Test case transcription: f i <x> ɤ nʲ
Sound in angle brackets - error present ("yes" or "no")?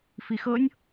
no